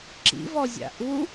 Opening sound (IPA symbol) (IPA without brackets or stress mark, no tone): ǁ